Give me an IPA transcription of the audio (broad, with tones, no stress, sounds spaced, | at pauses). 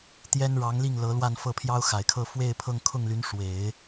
t̪ j ɛ˥ n ɻ ɑ˧˥ ŋ l i˥˩ ŋ l ɤ˧˥ l w a˥˧ n f ɤ˥˩ pʰ j ɑ˥ ʊ̯ x a˨˩ ɪ̯ kʰ ɤ˥˧ f w e˥˧ ɪ̯ pʰ ɤ˥˧ ŋ kʰ ʊ˥˩ ŋ l y˧˥ n ʂ w e˨˩˦ ɪ̯